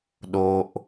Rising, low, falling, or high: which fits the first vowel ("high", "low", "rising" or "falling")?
low